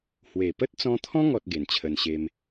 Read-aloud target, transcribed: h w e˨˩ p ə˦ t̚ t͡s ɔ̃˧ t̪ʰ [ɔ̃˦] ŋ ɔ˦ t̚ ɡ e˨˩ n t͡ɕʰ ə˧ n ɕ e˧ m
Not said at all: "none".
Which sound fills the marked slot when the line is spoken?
ɔ̃˦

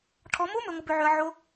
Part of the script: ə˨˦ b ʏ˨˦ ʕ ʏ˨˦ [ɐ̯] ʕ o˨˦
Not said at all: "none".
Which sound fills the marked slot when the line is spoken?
ɐ̯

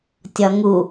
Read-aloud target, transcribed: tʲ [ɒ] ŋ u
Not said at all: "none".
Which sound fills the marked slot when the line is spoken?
ɒ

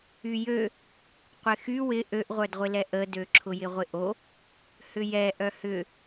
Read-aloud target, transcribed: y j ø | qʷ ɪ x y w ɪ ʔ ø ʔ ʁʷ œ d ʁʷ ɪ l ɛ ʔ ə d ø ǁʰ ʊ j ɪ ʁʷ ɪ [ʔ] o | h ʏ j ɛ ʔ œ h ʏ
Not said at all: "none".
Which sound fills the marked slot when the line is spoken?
ʔ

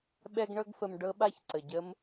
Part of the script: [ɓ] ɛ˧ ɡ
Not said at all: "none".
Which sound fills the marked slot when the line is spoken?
ɓ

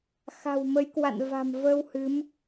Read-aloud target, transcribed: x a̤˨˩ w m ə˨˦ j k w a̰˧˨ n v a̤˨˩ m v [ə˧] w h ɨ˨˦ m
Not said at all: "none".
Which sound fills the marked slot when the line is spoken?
ə˧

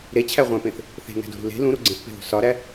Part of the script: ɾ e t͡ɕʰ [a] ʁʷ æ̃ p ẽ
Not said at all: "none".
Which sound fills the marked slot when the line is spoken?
æ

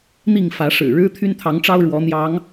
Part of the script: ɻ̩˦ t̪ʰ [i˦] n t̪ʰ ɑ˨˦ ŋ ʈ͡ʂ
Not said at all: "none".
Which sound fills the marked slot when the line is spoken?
y˦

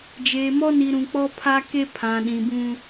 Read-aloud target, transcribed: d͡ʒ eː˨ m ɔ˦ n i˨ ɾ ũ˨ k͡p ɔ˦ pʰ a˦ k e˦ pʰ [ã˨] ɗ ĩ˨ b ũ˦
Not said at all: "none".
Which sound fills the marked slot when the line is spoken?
ã˨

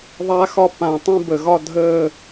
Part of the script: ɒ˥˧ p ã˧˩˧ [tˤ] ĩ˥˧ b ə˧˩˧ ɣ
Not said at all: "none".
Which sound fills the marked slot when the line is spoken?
tˤ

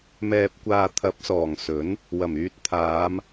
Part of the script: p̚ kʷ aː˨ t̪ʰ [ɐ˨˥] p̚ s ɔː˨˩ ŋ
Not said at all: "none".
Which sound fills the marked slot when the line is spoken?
ɐ˨˥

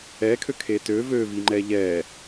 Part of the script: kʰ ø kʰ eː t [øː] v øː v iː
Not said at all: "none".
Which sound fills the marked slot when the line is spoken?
øː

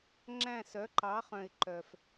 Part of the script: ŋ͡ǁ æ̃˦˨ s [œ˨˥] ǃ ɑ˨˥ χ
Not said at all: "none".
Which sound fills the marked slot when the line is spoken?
œ˨˥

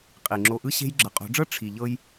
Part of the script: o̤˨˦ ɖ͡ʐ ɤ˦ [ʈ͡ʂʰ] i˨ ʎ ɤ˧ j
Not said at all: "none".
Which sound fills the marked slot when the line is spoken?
ʈ͡ʂʰ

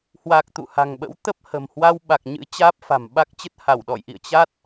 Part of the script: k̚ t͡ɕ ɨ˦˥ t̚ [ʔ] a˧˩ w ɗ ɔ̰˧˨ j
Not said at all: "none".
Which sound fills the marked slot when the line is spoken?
h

